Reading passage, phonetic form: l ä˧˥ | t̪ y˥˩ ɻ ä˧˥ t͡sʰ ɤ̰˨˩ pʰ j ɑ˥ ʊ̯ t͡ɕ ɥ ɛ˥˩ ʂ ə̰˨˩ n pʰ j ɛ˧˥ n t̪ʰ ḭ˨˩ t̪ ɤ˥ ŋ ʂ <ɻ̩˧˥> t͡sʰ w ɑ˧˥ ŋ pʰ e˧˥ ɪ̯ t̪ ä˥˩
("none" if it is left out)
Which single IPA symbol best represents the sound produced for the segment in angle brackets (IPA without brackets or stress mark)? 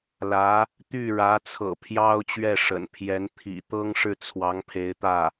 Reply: ɻ̩˥˩